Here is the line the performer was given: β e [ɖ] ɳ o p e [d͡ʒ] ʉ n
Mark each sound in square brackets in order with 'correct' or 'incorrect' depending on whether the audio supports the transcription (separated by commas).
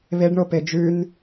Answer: correct, correct